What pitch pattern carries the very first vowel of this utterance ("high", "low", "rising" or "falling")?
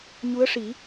rising